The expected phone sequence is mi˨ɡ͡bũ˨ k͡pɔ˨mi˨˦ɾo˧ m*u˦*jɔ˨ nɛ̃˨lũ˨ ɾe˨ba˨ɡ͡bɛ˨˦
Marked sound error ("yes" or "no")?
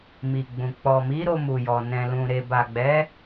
yes